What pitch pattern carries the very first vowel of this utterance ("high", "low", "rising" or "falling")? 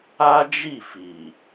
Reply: high